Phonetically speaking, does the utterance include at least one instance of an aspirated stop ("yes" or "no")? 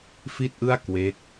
no